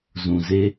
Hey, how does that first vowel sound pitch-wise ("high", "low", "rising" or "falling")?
low